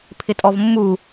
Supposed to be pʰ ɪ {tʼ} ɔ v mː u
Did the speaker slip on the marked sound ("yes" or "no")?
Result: no